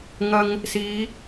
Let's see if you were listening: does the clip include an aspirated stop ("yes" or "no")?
no